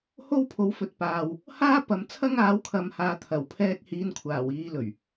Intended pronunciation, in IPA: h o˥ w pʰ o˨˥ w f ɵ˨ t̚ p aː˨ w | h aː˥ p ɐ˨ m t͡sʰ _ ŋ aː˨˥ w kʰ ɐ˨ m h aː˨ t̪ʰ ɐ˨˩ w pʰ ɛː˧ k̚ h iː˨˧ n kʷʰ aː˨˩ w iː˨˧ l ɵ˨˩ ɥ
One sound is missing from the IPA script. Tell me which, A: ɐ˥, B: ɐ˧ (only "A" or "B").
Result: A